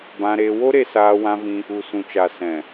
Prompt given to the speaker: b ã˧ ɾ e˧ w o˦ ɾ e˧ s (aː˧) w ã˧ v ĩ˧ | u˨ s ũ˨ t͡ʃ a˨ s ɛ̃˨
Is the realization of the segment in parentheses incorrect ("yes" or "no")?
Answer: no